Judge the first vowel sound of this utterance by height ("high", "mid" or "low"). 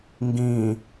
high